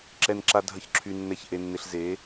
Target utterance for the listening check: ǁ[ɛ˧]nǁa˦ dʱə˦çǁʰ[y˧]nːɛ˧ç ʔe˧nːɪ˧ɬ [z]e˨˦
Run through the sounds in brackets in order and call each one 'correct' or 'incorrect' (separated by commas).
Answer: incorrect, correct, correct